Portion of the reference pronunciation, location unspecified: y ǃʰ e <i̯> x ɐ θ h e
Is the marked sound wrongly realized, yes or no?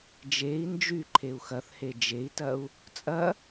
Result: yes